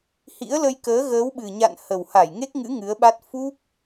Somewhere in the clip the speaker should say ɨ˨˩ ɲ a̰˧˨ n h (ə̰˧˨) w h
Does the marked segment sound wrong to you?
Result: yes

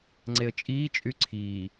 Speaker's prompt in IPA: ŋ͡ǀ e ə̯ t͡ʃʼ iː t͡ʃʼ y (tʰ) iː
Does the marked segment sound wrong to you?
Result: yes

